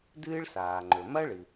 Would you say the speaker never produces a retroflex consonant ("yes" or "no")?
no